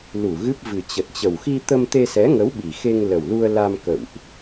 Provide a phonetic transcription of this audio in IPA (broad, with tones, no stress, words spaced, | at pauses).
lu˧˩ɣɨ˦˥p̚vɨ˨˩ t͡ɕə˨˩t̚t͡ɕə˨˩w xi˧t̪ə˧m t̪e˧sɛ˨˦ŋə˨˦w ɓi˨˩xe˧ŋlə˨˩wlu˧ə̯ la˧mkə̰˧˨wʔ